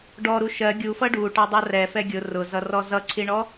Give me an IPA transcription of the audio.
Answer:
ɖɔɾu ʃɜ ɡʲufʌ ɖuʈɑ dˤʌrɛfɛ ɡʲʊ rʊzʌrɔ zʌǀʰiɳɔ

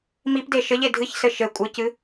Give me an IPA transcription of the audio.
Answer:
mipde ʃɘʎe dʱɨçsɘ ʃɘ kʷʼɨcɨ

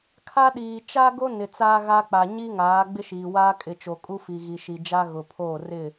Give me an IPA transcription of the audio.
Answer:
kʰa˦ɗiː˨ t͡ʃa˦ɡo˦ nɪ˨t͡saː˦ɣa˦k͡pa˨ ɲi˦ ŋaː˨˦ ɡ͡bɪ˦ʃiː˨waː˦ kʼɪ˨ t͡ʃo˨kʼu˦ fi˨ɣi˨ʃi˨d͡ʒa˦ ɣʊ˨pʰoː˦˨ rɪ˦˨

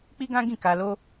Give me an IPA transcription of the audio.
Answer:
k͡pi˦ɡã˦ɡĩ˦˨ ka˧lo˦

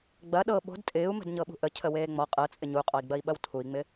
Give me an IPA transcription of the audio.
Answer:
ɡ͡bɐ ɗɤ ɓo̤d tʼɪːu̯ mə̤dɲɤɓṳʔə cʰəweːŋ͡mɔ qʼɤt͡sʼɪ ɲuqʼɔi̯ɡ͡bɐi̯ɓɐw tʰui̯ŋ͡mɪ

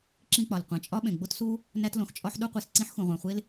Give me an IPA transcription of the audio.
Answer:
ǁĩ˥k͡pɒ˩l qʷẽ˩t͡ʃʼɒ˥ɓẽ˩ ɡ͡bo˥tsu˥ | næ˥tlõ˩xt͡ʃʼɒ˥ħ ɗu˥qʷi˩s ǀĩ˥ħxũ˩ʁʷæ̃˩χʷe˥l

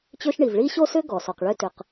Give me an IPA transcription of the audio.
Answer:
t͡ɕø˥ʃɳi˩v ɭi˥ɕo˥sʏ˥ɡɔ˩ sɔ˩qɭø˥tʏ˩q

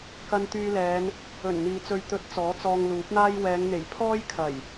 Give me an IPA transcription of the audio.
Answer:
kɐ˧nt̪yː˧lɛː˨˧n | ɵ˨˩nn̪iː˨ t͡sɵ˨ɥt̪ɵ˨˥t̚ t͡sɔː˨˥t͡sɔː˧ŋluː˨˥p̚n̪aː˥j wɛː˨˧ŋn̪e˨˩j pʰɔː˥jkʰɐ˨˩j

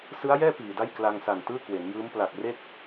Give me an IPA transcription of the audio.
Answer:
sɯ˦˥a̯jɛː˥˩ piː˨˩da˥˩j kla˧ŋsa˨˩n tɯː˥˩kwe˩˦njɯː˦˥m pla˨˩k̚re˥˩k̚

